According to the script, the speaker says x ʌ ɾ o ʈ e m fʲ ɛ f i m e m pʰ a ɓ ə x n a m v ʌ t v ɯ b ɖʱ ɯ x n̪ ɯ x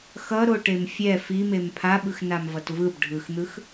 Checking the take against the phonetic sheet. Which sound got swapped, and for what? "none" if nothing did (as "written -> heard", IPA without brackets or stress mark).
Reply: ə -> ɯ